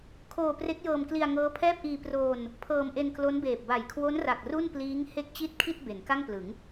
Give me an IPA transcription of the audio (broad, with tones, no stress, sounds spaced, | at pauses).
kʰ oː˧ p r e˦˥ k̚ j ɤː˧ m k l i˧ a̯ ŋ ɤː˦˥ pʰ ɛː˥˩ p̚ ʔ iː˧ p r oː˧ n | pʰ ɤː˧ m ʔ e˧ n k l o˦˥ n b eː˨˩ p̚ b a˨˩ j kʰ w o˦˥ n r a˨˩ k̚ r u˥˩ n p l iː˦˥ ŋ h e˥˩ k̚ t͡ɕ i˥˩ t̚ kʰ i˥˩ t̚ b e˩˦ n k a˥˩ ŋ p l ɯ˩˦ ŋ